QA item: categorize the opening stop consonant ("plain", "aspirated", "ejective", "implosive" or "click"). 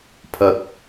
aspirated